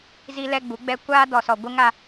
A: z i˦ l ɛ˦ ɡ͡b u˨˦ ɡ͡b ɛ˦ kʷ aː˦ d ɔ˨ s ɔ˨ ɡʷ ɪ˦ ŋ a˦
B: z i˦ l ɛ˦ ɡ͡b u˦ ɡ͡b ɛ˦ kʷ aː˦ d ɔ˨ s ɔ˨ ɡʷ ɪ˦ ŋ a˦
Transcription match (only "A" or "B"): A